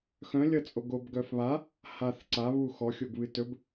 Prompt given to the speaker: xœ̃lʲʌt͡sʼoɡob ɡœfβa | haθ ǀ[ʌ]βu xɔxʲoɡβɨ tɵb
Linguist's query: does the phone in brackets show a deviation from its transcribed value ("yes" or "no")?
yes